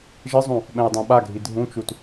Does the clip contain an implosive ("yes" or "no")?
yes